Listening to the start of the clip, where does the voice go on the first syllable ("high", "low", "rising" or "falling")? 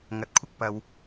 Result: low